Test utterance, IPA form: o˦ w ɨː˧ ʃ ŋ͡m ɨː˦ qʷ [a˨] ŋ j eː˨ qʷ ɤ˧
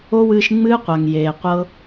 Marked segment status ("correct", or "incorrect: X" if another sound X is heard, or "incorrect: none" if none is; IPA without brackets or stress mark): correct